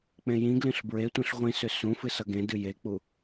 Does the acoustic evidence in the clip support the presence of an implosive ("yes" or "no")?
no